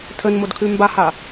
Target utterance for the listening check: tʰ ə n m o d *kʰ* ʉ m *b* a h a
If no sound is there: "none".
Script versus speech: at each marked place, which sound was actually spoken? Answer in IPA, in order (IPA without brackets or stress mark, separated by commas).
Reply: kʰ, b